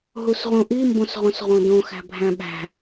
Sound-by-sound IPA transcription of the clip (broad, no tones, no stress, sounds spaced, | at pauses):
ɦ u s ʁ ũ ʔ i m b õ s ʁ õ s ʁ õ d õ x æ̤ bʱ æ̃ ɓ æ̤